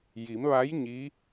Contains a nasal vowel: no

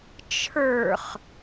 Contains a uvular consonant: yes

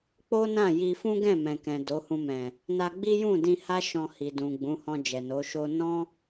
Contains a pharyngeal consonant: no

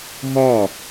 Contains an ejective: no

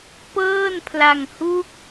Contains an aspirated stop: yes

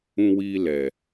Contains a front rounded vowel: no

